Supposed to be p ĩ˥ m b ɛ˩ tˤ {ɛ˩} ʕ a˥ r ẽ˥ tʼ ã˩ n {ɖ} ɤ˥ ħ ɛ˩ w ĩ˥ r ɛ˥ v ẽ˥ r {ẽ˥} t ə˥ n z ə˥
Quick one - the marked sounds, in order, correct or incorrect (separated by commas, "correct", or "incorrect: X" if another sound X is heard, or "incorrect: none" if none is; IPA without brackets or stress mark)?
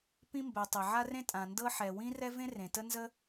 incorrect: e˩, incorrect: d, incorrect: ẽ˩